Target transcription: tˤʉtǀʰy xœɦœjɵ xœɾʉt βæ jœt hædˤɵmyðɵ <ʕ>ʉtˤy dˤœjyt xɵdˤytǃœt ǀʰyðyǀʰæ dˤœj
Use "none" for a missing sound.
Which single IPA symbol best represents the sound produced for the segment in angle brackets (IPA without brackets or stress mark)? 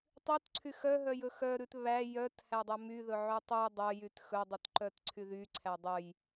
ʕ